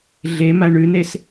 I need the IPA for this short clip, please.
ɮ e m a ɳ ʉ n e s

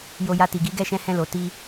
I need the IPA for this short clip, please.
j o˧ j a˧ t i˨ ɡ i˨˦ ɡ ɛ˦˨ ʃ ɛ̃˧ h ɛ̃˧ l o˨ t i˧

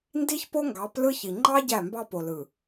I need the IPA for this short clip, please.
n d i˦ ç p o˦ ŋ ɡ ɑ˨˦ p l ɯ˦ ç i˨ ŋ͡ǃ ɑ˦ ɟ æ˦˨ m b ɑ˦ p o˨ l ɯ˨

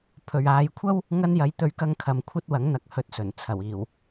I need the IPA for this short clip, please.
pʰ ɵ˨ ɥ aː˨˧ j kʷʰ ɐ˥ w | ŋ ɐ˧ n j ɐ˨˥ j t̪ ɵ˨˧ ɥ k ɐ˥ ŋ kʰ ɐ˧ m kʷʰ ɐ˥ t̚ w ɐ˨˥ ŋ n̪ ɐ˨ k̚ h ɵ˨˥ t̚ s ɵ˨˩ n t͡sʰ ɐ˨˩ w iː˨˩ w

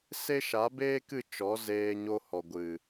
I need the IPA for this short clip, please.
s e˦ ʃ a˨˦ b eː˦ k ɨ˦˨ t͡ʃ ɔ˨˦ z eː˧ ɲ o˧ h ɔ˨ ɡʷ ɨ˨

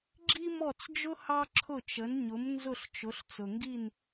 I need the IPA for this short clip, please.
ɡ͡ǁ i˥ m ɔ˥˩ t͡s d͡ʒ ʊ˥ h ɑ˥ ǁʰ ʊ˥˩ t͡ʃ ə˩˥ n ɲ ʊ˩˥ m n z ʊ˥˩ ɬ t͡ʃ ʊ˩˥ ɬ t͡s ʊ˩ ŋ ɡ i˥˩ n

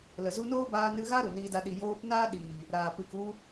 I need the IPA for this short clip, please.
l ə˨ z u˧ n oː˦ b aː˧ n ɨ˧ ɣ a˦ ɾ u˨ n iː˧ d a˧ ɗ i˨ j oː˧ p n aː˦ ɗ iː˨ | ɾ aː˨ p ɨ˨ k u˧

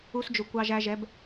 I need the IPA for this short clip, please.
u˧ s d͡ʒ ʊ˨ kʷ ɑ˧ ʒ æ˧ ʒ ɛ˨˦ b

